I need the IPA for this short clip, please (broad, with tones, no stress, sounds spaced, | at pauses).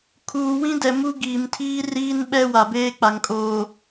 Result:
kʰ uː˨ w ĩ˦ d ɛ˨ m u˦ ɡ iː˨ m tʰ iː˦ r iː˦ n ɓ ɛ˦ w a˨ b eː˦ k͡p a˨ ŋ kʼ oː˨